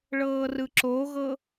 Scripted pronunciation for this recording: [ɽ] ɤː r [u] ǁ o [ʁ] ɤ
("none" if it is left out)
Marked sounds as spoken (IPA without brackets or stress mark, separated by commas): ɭ, ɯ, ɣ